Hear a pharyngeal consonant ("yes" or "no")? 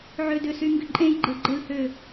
yes